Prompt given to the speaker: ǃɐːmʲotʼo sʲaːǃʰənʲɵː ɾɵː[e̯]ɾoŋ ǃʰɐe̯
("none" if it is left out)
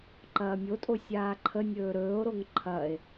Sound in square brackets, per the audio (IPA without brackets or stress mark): o̯